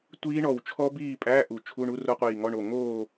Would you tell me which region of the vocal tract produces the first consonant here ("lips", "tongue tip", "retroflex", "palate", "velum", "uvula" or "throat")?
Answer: tongue tip